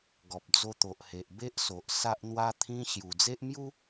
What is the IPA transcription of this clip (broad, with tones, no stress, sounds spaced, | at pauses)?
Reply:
ɡ ɔ˨ p̚ d͡z o˧ t̪ o˨ ʔ h e˨ ʔ b e˦ ʔ s o˨ ʔ s a˦ ʔ n̪ w a˦ t̪ʰ ĩ˦ ɕ j u˨˩ d͡z e˦ ʔ m j u˦